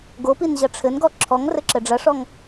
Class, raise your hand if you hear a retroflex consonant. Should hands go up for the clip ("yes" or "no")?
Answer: yes